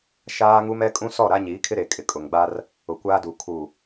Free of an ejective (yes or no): no